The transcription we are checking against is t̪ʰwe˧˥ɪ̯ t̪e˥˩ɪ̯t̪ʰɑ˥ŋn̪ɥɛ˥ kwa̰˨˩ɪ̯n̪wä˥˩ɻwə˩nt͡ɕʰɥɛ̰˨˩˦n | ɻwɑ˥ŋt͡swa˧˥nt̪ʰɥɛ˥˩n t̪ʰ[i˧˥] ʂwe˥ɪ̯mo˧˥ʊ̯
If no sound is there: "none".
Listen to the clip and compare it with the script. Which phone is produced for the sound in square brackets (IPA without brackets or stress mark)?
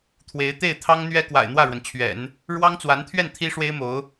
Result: i˥